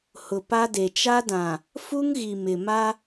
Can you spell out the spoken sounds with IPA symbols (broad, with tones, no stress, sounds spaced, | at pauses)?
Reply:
h ʊ˨ p a˦ d e˨ t͡ʃ a˦ d ã˨ | f u˦ ŋ ɣ i˨ m ɪ˨ m a˦